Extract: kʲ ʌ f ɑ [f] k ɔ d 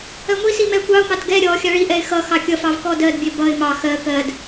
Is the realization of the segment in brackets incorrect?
yes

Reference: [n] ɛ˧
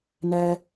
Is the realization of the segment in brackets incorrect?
no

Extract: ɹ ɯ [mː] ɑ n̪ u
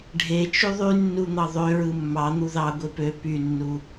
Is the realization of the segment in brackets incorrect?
no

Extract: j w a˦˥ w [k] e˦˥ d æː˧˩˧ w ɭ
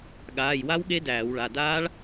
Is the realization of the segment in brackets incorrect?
yes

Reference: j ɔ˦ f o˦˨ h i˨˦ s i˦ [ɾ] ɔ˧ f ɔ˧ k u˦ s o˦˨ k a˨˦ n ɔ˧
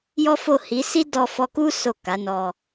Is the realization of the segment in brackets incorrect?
yes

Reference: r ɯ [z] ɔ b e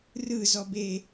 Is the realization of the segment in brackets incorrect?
no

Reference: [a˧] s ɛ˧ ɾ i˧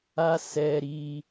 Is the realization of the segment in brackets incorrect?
no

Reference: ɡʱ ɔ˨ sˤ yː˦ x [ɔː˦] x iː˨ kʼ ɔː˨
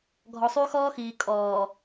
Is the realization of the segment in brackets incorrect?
no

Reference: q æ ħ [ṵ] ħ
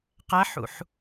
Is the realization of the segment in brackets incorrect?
no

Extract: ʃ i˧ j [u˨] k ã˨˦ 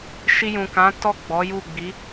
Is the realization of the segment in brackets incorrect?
yes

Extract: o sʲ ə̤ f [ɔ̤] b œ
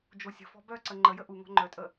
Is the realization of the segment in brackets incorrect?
no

